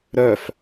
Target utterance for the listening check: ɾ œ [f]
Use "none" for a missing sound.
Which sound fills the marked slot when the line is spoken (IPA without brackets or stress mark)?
f